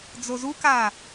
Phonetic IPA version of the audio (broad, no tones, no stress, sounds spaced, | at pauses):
d͡z o z u k a